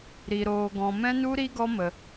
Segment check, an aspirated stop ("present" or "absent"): absent